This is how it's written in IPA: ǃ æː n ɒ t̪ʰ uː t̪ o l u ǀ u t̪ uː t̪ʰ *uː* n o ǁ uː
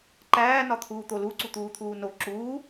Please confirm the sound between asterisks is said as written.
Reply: yes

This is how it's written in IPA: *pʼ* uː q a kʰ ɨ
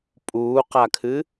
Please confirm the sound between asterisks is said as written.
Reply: yes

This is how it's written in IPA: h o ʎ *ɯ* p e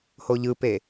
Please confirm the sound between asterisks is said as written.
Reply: yes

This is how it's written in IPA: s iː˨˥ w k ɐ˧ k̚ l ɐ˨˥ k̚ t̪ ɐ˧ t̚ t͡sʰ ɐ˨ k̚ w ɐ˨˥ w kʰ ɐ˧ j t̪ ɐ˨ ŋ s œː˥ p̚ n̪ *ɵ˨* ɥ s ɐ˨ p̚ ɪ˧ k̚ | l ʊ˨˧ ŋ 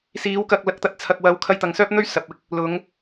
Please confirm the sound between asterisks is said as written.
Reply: no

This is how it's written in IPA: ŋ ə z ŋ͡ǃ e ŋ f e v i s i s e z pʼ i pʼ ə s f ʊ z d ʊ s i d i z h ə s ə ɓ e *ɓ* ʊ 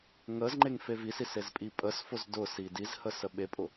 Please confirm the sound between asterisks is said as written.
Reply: no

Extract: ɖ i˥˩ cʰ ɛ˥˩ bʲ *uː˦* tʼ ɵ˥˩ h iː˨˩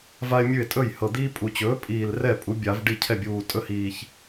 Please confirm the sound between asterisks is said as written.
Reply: no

